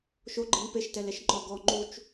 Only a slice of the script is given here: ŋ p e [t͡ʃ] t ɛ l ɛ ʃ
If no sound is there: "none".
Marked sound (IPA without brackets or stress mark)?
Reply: ʃ